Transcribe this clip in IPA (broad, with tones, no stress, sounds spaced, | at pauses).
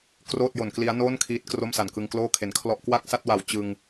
k r oː˥˩ t̚ j o˨˩ n k l i˦˥ a̯ n oː˥˩ n kʰ iː˦˥ t̚ k r o˥˩ m s a˨˩ n k ɯ˧ ŋ k l oː˥˩ kʰ e˨˩ n kʰ l ɔ˥˩ ʔ k w a˥˩ k̚ s a˥˩ t̚ w a˨˩ w t͡ɕ ɯ˧ ŋ